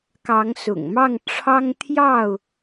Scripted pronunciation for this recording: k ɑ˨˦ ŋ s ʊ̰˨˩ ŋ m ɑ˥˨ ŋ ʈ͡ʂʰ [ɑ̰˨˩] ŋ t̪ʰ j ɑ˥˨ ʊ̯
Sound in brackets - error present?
yes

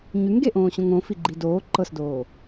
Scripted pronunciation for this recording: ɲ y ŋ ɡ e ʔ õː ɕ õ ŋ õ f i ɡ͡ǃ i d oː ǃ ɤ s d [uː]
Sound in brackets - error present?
yes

